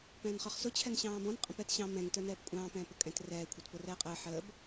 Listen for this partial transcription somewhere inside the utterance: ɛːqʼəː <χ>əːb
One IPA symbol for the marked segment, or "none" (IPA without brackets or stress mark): ħ